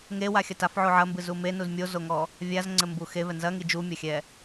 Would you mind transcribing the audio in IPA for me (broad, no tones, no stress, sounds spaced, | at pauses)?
ŋ e w a xʲ ɐ t a f ʕ o ʕ ɐ m b ɨ z u m e n u z mʲ o z o ŋ ɔ | vʲ a z ŋ͡ǀ ɘ m b u x e v ɛ n z ɐ ŋ i d͡ʒ u mʲ ɐ xʲ ɛ